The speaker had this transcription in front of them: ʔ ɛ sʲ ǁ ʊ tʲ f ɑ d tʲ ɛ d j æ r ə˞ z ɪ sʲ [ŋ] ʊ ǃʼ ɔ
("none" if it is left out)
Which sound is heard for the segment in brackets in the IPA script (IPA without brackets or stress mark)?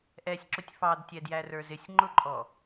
ŋ͡ǃ